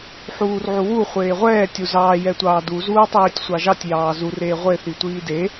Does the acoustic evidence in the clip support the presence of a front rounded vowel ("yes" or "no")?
no